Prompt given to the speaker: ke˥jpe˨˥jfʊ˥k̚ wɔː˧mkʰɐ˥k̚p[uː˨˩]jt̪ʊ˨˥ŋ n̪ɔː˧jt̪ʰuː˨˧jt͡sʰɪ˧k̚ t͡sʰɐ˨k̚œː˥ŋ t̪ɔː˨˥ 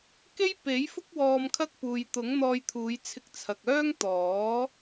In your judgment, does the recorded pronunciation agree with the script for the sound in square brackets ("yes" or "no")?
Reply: no